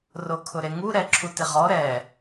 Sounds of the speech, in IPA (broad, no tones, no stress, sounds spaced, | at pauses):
r o kʰ ʊ ɾ e ŋ u ɾ ɛ ǁʰ u t ɪ ʁ ɔ ɾ ɛ